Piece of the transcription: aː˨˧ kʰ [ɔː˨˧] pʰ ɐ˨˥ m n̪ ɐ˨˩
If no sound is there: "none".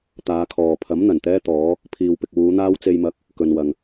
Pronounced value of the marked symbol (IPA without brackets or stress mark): ɔː˨